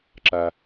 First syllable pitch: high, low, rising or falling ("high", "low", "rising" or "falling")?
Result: low